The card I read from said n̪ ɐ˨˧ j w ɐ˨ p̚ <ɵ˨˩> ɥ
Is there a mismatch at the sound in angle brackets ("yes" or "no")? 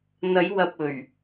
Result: no